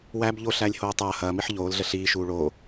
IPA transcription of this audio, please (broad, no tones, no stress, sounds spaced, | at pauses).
w æ b ʎ o ɬ æ lʲ h oː tˤ ɐː h ɐː m i ħ ʎ oː l ɮ ə ɬ iː ʃ uː ɭ oː